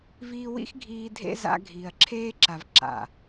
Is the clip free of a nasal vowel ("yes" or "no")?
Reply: yes